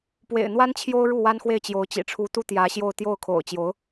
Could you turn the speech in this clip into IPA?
p w ḛ˨˩ ɪ̯ n̪ w a˥ n t͡ɕʰ j o˥ ʊ̯ ɻ u˥˩ w a˥ n x w e˥˩ ɪ̯ t͡ɕ j o˧˥ ʊ̯ t͡ɕ ḭ˨˩ ʈ͡ʂʰ u˧˥ t̪ u˥ t̪ j ä˧˥ ɕ j o˥˧ ʊ̯ t̪ j o˥˩ ʊ̯ kʰ o̰˨˩ ʊ̯ t͡ɕ j o˧˥ ʊ̯

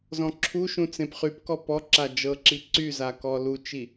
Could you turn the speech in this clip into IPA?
z ɔ̃ ǁʰ u ʃ ũ t͡s ẽ p χ y p k ɔ p ɔ ǁ a d͡ʒ ɤ ǁ i ǀ y z a k ɔ l u t͡ʃ i

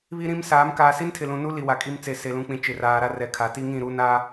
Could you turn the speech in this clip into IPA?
β i˦ ɾ ĩ˦ m s aː˨˦ m k aː˨ s i˦ n tʰ ɪ˨ l ũ˨ n u˦ l i˨ w a˨ kʼ i˦ m t͡s e˨ s e˨ l ũ˨ k͡p ĩ˨ t͡ʃ ɪ˨ r aː˨ ɾ a˦ r ɛ˨ kʰ a˨ t i˦ ŋ ĩ˦˨ ɾ u˦ n a˦

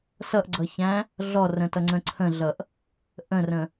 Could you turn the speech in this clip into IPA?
s ʌ ʔ ɡ͡ǀ ʌ ç æ̃ | ɮ ɔ r ə̃ t ʌ ŋ͡ǀ ə̃ ǀʰ ə̃ ɮ ʌ ʔ | ʔ ə̃ r ə̃

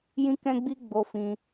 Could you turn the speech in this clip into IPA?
j ĩ˦ k ɛ̃˦ ɡ͡b i˦ ɡ͡b o˧ f ĩ˧

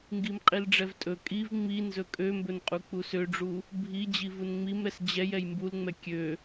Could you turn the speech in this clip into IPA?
ŋ ɡ i m qʼ i l ɖ͡ʐ ɛ v tʼ ɵ kʼ i v ŋ͡m i n z ɵ kʼ ø m b ɵ n qʼ u k͡p u s ø ɖ͡ʐ u | bʱ i d͡ʑ i v u n ŋ͡m i m ɾ ɛ s d͡ʑ ɛ j ɛ j m b u l ŋ͡m ɛ kʲ ø

